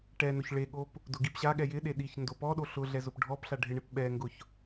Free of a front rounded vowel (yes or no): yes